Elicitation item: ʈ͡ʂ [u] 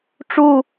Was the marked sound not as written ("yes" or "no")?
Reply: no